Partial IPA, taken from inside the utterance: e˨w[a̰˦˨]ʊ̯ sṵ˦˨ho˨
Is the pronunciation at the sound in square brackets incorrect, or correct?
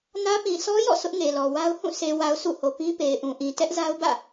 incorrect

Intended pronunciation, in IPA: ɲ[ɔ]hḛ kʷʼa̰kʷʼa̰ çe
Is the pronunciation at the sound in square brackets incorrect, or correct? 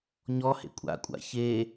correct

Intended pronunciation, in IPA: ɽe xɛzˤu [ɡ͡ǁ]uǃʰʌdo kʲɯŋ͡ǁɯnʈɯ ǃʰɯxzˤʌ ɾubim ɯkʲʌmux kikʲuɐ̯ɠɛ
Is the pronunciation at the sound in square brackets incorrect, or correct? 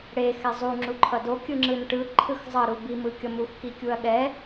incorrect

